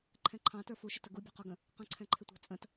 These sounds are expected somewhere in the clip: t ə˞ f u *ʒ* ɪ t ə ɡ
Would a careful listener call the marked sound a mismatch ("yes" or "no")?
yes